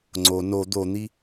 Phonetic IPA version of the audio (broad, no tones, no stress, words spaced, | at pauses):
ŋ͡ǀo no d̪on̪i